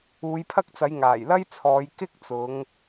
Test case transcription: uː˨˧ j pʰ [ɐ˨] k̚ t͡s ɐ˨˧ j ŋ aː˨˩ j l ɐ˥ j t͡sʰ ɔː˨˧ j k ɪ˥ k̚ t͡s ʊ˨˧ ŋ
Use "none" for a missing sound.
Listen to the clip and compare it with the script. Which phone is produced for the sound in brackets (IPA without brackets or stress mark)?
ɐ˥